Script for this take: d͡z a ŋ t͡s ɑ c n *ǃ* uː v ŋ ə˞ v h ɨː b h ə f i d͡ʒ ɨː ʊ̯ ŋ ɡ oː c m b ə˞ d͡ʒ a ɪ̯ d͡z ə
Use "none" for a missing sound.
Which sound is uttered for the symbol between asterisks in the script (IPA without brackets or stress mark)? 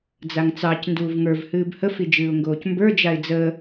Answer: d